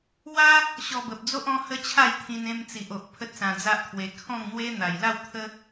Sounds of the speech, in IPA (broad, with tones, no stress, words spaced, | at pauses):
wa˦ | ɕɔ˧bə˨p̚d͡zo˦ʔ ɔ̃˦hə˦t͡ɕʰa˥˧jt̪ʰĩ˧n ẽ˧mt͡si˨ʔo˨ʔ pʰə˦t̚sã˧d͡za˦ʔt̪ʰwe˧ kʰɔ̃˥˧ŋn̪we˦ n̪a˨˩jla˥˧wt̪ʰə˦